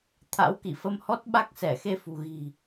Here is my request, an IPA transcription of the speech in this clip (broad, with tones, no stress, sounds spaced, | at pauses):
t̪ʰ a̰˧˥ w k i˧˩ f ə˧ m h ɔ˦˥ t̚ ɓ a˦˥ k̚ s ɛ˧˩ x e˧ f ṳ˨˩ ɣ i̤˨˩